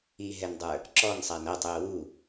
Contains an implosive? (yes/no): no